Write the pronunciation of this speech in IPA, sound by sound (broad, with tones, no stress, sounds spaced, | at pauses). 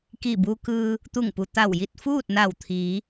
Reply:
k i˧˩ b u˧ k ɯː˧ | t̪ u˧˩ ŋ p u˩ t̪ a˧˩ w j i˥˨ t̚ f uː˥˨ t̚ n a˧˩ w t̪ʰ iː˩˧